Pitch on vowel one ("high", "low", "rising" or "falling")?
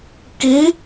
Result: rising